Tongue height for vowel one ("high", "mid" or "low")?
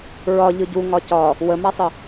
low